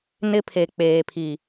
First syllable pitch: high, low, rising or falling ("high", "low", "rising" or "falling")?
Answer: high